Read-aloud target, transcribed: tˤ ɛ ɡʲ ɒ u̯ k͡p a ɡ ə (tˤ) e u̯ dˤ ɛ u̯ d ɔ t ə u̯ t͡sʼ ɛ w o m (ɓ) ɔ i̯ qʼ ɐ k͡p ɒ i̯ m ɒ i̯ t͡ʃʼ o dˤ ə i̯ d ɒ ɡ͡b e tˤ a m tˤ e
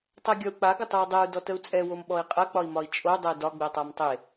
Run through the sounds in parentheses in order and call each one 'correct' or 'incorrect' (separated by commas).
correct, correct